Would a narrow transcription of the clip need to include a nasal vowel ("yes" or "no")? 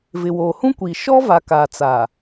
yes